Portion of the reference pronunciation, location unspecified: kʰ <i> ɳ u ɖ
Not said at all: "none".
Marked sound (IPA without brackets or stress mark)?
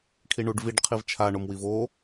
i